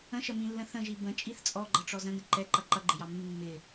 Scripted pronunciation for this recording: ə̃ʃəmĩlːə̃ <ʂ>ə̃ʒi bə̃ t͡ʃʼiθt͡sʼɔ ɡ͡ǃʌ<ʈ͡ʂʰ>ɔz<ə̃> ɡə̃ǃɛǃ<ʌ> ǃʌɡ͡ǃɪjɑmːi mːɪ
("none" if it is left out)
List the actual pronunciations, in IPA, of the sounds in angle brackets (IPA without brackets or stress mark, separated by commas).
θ, ʈ͡ʂ, ə̃, ʌ